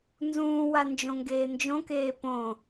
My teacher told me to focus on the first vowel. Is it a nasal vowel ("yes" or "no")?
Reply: yes